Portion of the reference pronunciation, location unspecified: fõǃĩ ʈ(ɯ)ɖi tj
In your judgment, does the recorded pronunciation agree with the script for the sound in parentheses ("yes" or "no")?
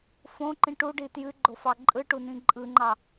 no